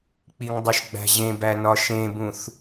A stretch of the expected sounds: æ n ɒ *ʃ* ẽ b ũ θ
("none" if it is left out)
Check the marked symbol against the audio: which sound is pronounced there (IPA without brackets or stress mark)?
ʃ